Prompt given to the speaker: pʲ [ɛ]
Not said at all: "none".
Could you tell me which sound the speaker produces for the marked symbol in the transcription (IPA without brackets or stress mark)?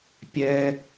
ɛ